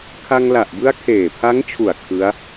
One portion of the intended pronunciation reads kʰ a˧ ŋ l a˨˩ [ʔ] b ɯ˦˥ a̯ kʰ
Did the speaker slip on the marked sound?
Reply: no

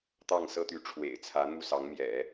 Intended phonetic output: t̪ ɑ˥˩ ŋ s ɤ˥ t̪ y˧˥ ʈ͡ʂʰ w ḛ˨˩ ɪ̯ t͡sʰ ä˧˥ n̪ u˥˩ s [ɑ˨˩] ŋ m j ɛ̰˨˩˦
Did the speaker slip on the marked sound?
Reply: yes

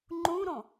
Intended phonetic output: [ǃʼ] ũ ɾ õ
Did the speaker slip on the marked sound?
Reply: yes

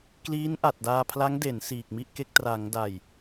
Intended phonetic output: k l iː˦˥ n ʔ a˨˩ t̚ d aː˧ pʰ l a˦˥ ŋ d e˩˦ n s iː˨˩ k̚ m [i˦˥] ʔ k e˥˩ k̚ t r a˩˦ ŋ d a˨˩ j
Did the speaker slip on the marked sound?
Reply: yes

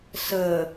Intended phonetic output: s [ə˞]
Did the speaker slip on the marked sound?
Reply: yes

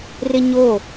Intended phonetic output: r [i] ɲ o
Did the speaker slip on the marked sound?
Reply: yes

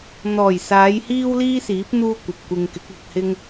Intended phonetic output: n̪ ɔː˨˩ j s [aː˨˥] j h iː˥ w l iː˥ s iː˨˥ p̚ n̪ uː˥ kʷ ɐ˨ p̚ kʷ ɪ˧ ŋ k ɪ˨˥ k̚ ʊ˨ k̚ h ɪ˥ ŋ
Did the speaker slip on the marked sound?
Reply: yes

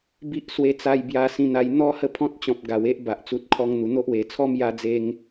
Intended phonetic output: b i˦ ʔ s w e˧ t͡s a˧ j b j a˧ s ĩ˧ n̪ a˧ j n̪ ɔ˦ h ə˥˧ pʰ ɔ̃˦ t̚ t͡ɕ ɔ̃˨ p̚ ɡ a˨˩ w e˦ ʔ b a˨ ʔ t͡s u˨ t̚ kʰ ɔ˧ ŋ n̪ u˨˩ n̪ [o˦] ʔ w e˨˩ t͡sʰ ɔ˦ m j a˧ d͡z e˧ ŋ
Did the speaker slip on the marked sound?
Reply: no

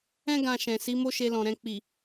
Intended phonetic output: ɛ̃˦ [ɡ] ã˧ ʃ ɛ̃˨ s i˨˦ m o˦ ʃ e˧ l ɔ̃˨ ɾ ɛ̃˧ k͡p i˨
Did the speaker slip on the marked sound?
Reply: no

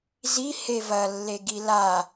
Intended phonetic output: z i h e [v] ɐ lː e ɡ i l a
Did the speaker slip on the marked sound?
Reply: no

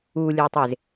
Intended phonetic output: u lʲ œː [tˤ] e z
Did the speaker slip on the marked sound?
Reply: no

